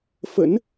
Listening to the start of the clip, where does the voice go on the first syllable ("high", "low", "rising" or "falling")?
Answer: rising